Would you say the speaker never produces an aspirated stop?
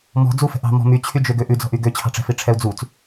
no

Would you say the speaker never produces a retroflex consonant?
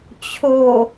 yes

